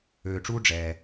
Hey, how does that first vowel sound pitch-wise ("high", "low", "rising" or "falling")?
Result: low